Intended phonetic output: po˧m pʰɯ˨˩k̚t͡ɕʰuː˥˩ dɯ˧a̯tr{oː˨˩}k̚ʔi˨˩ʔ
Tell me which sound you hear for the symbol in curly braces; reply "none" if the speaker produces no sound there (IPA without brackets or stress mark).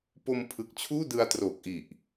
oː˨˩